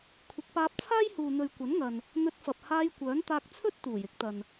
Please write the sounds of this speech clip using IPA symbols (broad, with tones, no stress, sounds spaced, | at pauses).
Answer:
kʷʰ ɪ˨˥ k̚ p aː˧ p̚ t͡sʰ aː˥ j h uː˨ n̪ ɵ˨ ɥ kʷ ɐ˨˥ n ŋ ɐ˨ n | n̪ ɵ˧ t̚ f ɐ˨ p̚ h aː˧ j kʷ œː˨˥ n t̪ aː˧ k̚ t͡sʰ ɵ˥ t̚ t̪ uː˨˩ j ɪ˨˥ k̚ t̪ ɐ˨ n